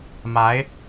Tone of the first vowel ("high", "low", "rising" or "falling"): rising